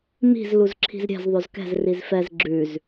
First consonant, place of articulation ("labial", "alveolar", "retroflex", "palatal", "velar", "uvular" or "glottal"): labial